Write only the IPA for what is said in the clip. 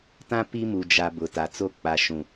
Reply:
tã˦ pi˦mu˨d͡ʒa˨ bʊ˨ ta˨t͡so˦˨ k͡pa˨ ʃũ˨

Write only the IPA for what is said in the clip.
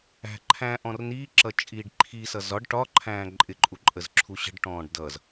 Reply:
æ̤ǃʰæ̃ː ʔɔ̃rniːǁʌ t͡ʃʼiːɖǃʰisʌ zɒɖ ʈɒǃʰæ̃ː ǃʼɪǃʼu ǃʼəzǁʰuɕə̤ɖʈɔ̃ːɖ dʌz

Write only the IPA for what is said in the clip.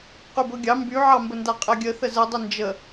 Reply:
qybɤɡʲɑ mbyʕɑmbənda qʼɛɡʲəθə zədˤə nd͡ʒə

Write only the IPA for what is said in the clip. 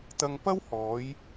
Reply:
t̪ɐ˧ŋpɐ˥whɔː˨˧j

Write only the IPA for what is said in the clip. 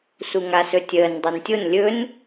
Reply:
suŋasɵtʲəːn dˤɛntʲon lʲɵn

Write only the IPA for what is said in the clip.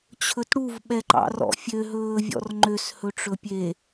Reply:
t͡ɕʰɵtɽuv ɓɛǃɑ̰rɔ̰fʲø ɦɵːvʲɔ̰rŋ͡ǃøs hɵʈ͡ʂɵpʲe

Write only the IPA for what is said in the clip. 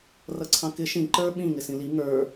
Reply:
rʌǀʰɑ̃kɪ ʃĩ ǃə˞ ɓĩ ŋɪsĩli ŋə˞

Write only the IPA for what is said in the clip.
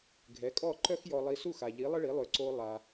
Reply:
ɡʱɛ˩˥kʼɔ˥˩ǃœ˥x jɔ˧lˠi˧ su˥˩xa˩ʎi˩˥ lˠə˥ɭi˩˥ lˠø˩˥ǀo˧ lˠa˩

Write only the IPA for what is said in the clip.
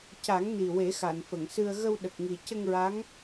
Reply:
ca˨˩˦ŋni˨˩ we˨˩˦xa˨˩˨nfə˨˩˨ŋsɨ˧ə̯ ɣə˧wɗə˨˩k̚ŋi˨˩ cə˧ŋɹa˧˥ŋ

